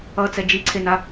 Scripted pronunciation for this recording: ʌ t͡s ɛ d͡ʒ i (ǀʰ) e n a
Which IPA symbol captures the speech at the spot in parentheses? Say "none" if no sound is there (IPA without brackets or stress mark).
ǀʰ